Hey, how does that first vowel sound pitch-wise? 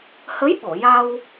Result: rising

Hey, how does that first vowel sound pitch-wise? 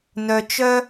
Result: low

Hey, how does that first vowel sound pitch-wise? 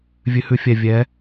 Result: rising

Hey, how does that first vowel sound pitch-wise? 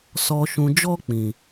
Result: low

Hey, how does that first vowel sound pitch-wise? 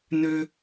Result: high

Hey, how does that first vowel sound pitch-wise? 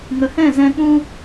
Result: low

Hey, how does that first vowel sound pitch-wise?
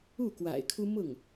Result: falling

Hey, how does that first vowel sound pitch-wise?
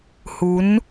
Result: rising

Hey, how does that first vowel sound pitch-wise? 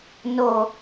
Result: low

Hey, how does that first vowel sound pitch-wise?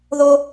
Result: high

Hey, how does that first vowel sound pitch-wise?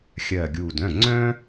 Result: low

